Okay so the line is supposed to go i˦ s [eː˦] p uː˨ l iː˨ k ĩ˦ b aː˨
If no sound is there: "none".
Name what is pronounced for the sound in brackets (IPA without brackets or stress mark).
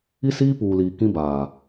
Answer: iː˦